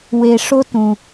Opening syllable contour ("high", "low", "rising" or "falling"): low